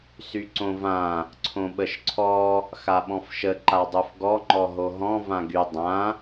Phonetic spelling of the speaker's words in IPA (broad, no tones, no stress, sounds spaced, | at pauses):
s y ǀ õ v ã | ǀʰ õ ɓ ə ʃ ǀʰ ɔ | x a ɓ ɔ̃ f ʃ ə ǃ a dˤ u f ɡ ɔ ŋ͡ǃ ɔ ɦ o ɦ ɔ̃ v ã ɡ y dˤ ã